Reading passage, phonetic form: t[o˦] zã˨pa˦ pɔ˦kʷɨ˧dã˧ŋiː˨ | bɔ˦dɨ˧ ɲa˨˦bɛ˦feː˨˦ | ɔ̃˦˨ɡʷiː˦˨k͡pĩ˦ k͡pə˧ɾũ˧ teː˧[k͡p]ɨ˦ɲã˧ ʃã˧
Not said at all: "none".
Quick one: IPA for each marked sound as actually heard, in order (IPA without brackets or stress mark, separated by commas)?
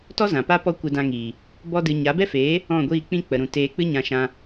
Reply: ɔ˦, k͡p